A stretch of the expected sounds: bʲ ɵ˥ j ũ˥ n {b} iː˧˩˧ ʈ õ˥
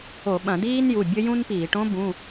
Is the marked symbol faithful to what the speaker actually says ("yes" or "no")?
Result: no